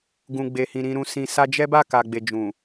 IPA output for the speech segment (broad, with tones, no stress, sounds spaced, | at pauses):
ɡ ũ˨ ɡ͡b e˨ h ĩ˨ ɾ ĩ˨ ɾ ũ˨ s ĩ˨ s a˧ d͡ʒ ɛ˦ b a˦˨ k a˨ ɡ͡b e˨ d͡ʒ ũ˨